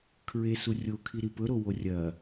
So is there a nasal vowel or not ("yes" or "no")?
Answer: no